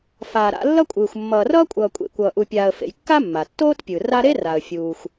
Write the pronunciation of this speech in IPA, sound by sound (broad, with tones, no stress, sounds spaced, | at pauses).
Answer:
f aː˨ ɾ a̰˦ lː ʌ˥ kʷʼ ɯː˨ xʷ mː ʌː˨ r ʌː˥ kʷʼ ʌː˨ kʷʼ ḛ˨ kʷ ʌː˨ ʔ u˨ pʲ aː˨ ə̯ f ḛ˨ j kː a˥ mː a˩ tː oː˥ t pʲ ɯ˩ r a˦ ɾ e˥ r a˩ ə̯ fʲ uː˩ xʷ